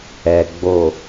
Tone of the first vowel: low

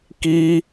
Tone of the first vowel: high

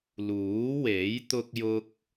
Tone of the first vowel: rising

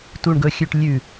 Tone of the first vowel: low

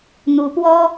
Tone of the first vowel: rising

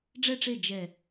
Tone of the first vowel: falling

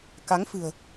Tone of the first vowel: rising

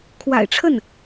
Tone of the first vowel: low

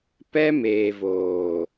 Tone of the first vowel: high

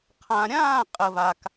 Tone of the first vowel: low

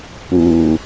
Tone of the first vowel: low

